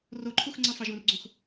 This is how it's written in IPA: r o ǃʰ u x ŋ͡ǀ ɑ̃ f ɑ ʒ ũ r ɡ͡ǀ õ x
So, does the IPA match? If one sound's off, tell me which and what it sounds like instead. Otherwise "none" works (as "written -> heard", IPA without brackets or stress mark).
none